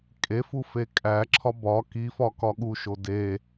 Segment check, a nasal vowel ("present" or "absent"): absent